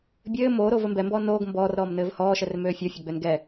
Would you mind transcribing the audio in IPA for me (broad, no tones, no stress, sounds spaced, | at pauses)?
bʲ ɘː m oː ɾ oː v ɘ m b ɛ m b ɔː n oː ɡ m b ɔː r ɾ ɔː m n ɘː v h ɔː ʃ ɛ r m øː fʲ o fʲ o ɡ͡b ø n ɡ ɛ